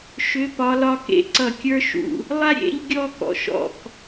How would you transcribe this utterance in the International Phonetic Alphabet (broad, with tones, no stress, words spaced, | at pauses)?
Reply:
ʃʏ˧˥ pɒ˧˥lɒ˥kḛ˧˥ ǀʌ˦˨kʲə˞˥ ʃṵ˦˨ | lˠa˥ɾʲḛ˧˥ʎ ɡʲɔ˥kɔ̰˨ʃɔ̰˦˨k